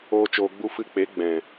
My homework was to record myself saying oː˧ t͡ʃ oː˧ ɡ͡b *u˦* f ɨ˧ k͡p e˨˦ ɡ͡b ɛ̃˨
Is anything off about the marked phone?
no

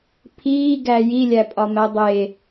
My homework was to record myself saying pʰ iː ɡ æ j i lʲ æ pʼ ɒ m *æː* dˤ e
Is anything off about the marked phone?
yes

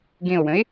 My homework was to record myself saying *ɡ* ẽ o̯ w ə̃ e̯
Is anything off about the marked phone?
no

